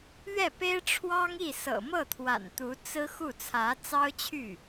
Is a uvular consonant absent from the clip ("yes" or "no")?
yes